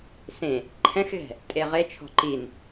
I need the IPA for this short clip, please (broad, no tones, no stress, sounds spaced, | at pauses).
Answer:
s ẽ | ǃʰ ɛ̃ x ɣ ɛ̤ | tʼ e ʁ e t͡ʃʰ ɔ̤ ǃ i n